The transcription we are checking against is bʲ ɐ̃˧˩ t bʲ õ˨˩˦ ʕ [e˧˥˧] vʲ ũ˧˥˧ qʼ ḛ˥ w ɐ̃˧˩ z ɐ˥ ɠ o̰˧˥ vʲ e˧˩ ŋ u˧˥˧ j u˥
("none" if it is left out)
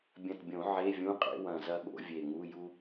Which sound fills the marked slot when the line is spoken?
e˧˥˧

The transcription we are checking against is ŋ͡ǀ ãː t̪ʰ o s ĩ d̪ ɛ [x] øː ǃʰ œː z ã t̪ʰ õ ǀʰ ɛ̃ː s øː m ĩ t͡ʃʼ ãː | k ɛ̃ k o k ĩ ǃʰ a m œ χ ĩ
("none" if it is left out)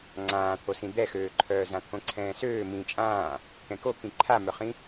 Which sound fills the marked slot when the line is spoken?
x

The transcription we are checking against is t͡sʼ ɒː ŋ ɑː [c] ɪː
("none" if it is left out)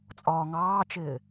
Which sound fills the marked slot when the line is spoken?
t͡ʃ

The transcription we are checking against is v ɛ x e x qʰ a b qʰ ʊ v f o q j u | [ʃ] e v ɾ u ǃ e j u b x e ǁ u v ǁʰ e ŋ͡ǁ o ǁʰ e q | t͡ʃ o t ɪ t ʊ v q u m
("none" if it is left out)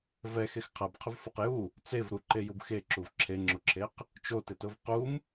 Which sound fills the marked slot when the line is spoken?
t͡s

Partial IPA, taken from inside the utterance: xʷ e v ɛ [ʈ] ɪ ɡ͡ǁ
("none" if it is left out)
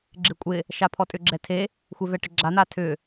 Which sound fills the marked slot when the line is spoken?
ʈ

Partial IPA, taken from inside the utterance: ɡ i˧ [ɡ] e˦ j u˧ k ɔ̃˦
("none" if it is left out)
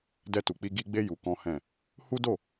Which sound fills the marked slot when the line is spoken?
ɡ͡b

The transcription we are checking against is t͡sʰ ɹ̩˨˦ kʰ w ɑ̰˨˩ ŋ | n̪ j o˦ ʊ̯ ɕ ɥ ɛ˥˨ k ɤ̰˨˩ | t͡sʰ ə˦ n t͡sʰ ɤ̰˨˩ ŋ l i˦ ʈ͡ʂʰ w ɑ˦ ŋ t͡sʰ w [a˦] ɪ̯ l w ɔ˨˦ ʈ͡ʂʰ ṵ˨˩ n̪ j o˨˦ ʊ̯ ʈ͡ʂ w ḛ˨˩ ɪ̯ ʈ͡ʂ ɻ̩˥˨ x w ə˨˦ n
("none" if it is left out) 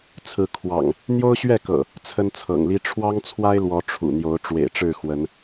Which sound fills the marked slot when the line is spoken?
a˦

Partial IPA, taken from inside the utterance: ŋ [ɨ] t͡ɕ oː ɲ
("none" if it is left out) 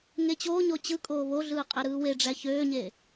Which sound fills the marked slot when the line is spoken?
e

